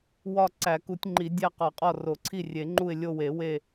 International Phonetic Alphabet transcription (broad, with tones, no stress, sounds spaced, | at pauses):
w ɒ˦˨ ǀ æ˨˩˦ k u˨˩˦ tʲ ŋ͡ǃ i˨˩˦ dʲ æ˦˨ q ɒ˨˩˦ qʼ ɒ˦˨ r o˨˩˦ ǀʰ i˦˨ rʲ e˨˩˦ ŋ͡ǃ u˦˨ ɪ̯ lʲ o˦˨ w e˨˩˦ w e˦˨